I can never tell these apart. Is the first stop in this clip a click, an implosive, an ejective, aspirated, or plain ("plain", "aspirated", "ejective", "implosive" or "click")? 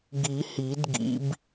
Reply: plain